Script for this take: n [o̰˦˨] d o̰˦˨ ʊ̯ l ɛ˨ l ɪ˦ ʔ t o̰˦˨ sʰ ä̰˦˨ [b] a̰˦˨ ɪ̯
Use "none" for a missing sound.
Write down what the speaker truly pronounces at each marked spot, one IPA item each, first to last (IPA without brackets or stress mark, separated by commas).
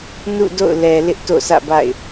ṵ˦˨, b